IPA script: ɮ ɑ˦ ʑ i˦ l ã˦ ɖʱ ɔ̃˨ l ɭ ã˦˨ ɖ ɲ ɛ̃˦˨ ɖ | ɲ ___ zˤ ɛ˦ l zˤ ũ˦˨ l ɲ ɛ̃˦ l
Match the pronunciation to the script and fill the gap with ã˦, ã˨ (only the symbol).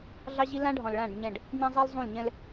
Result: ã˦